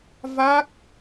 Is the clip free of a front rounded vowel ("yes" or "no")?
yes